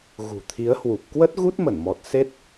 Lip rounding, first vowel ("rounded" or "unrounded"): rounded